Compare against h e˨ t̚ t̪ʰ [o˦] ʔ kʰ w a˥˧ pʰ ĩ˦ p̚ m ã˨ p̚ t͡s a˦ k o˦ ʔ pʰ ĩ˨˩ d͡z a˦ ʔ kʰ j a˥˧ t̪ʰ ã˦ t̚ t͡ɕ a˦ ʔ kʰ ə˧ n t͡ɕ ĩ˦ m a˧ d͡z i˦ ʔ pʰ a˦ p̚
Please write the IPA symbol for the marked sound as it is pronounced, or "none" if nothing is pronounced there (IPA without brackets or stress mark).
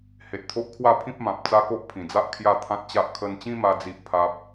o˦